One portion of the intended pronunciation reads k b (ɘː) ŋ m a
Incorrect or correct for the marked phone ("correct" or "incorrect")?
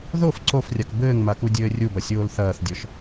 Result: correct